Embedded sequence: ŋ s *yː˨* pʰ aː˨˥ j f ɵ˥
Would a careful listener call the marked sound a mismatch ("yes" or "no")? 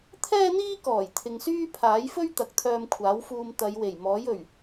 yes